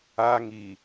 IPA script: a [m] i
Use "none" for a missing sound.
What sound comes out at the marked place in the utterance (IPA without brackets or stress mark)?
ŋ